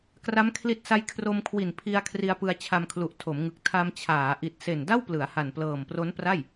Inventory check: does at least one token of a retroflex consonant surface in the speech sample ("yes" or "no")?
no